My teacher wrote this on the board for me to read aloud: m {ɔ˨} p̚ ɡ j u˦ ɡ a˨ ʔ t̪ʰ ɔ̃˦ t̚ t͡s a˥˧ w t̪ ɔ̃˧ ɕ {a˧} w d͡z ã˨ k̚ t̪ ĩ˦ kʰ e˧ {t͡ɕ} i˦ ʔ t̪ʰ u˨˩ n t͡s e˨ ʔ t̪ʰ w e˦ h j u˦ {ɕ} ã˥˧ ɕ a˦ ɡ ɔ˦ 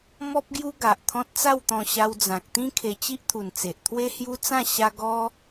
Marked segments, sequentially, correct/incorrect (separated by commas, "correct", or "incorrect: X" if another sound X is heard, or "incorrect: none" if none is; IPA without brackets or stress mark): incorrect: ɔ˦, correct, correct, incorrect: t͡s